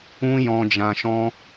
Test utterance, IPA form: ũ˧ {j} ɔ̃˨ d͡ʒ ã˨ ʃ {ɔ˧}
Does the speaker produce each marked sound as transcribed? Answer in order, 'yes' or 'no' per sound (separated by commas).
yes, no